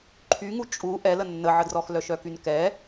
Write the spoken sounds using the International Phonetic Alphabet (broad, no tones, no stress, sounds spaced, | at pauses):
ǃʰ y ŋ u t͡ʃʼ u ʔ ɛ l ə nː ə ʕ ə d r ɔ x l œ ʃ œ k y n k ɛ